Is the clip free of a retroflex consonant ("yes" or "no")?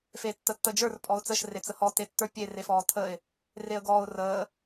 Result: yes